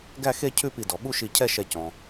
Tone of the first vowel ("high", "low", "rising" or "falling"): falling